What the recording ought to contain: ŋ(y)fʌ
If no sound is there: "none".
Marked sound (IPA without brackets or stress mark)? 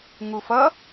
u